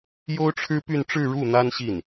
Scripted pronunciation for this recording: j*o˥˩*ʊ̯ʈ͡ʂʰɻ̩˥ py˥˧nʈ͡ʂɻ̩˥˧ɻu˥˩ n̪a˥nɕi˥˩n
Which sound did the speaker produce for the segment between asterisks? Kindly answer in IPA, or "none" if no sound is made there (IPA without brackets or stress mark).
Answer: o˥